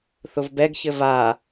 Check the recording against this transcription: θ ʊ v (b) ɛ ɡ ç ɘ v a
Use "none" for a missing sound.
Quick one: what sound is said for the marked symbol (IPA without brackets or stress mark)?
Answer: b